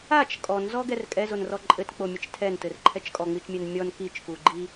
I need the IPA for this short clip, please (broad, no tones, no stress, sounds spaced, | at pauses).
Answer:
a t͡ʃ kʼ ɔ n z ɔ ɡ ɛ r kʼ ɛ z o n r ɔ ǃʼ ɘ t k͡p o mʲ ɘ t͡ʃ tʰ ɛ n t ɘ r ǃʰ ɛ t͡ʃ kʼ ɔ ŋ͡m i t͡ʃ mʲ ɛ n mʲ ɔ n k i t͡ʃ k u ɡ͡ǃ i